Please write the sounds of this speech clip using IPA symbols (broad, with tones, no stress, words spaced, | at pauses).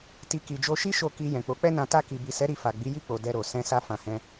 ti˧ ki˨d͡ʒo˧ʃi˦ ʃo˦˨ ki˧ jɛ̃˨k͡po˨˦k͡pɛ˦nã˧ ta˧ki˨bi˨sɛ˨˦ ɾi˧fa˨ ɡ͡bi˨˦ji˦˨k͡po˨ dɛ˧ɾo˨ sɛ̃˧ sa˧fã˨hɛ̃˧